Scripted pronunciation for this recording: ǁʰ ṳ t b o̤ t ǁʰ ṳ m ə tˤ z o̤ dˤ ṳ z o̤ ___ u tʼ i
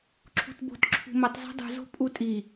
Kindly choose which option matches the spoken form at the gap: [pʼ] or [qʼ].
pʼ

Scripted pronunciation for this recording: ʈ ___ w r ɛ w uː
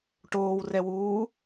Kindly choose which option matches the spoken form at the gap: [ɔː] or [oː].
oː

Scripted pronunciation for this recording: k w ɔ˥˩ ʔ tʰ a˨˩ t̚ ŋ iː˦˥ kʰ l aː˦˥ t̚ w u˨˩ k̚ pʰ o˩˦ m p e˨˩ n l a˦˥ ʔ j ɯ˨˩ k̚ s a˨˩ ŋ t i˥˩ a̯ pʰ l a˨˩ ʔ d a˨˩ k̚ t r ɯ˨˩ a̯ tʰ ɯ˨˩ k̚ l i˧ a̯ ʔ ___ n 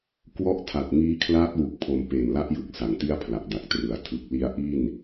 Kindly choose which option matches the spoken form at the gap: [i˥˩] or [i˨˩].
i˥˩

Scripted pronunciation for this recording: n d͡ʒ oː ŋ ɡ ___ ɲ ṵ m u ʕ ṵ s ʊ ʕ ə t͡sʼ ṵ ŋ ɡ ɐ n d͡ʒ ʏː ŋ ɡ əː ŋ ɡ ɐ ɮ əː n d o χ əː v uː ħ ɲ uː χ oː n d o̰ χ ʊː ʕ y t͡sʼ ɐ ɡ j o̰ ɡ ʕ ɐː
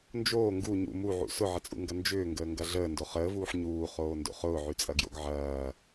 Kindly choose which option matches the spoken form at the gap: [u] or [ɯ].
u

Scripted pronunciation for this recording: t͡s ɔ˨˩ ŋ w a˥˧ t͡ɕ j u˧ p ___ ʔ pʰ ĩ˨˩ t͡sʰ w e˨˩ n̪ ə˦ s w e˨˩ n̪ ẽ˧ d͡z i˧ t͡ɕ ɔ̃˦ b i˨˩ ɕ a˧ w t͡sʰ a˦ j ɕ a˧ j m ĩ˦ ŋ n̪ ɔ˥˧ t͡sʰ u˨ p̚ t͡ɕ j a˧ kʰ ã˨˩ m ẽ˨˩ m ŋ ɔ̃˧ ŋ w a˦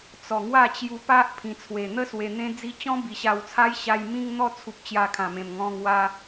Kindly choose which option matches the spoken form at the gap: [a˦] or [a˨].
a˦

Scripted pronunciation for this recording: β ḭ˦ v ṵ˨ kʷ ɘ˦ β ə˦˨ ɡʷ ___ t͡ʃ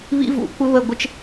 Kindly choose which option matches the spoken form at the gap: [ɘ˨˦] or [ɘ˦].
ɘ˦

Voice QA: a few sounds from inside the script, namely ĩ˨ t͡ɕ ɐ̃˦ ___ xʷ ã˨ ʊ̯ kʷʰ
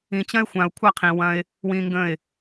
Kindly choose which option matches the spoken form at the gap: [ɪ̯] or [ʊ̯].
ɪ̯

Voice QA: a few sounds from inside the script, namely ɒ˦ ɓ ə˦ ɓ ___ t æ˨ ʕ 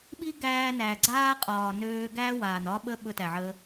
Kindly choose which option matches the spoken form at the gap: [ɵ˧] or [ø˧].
ɵ˧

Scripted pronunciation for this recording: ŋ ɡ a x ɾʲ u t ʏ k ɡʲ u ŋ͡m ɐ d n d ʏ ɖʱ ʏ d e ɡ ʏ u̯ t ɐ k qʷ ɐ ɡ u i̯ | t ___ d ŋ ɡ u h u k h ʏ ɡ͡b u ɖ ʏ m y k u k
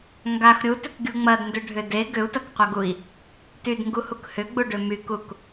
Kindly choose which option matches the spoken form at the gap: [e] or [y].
y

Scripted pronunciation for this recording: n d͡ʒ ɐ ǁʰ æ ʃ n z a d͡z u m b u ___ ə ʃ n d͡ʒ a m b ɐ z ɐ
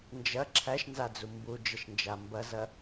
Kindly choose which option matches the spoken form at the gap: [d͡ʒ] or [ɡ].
d͡ʒ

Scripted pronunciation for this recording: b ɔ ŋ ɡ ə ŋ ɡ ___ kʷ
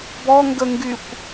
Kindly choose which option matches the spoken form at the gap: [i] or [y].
y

